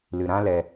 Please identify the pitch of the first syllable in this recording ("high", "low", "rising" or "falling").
low